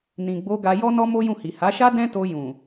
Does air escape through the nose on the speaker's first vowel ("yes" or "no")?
yes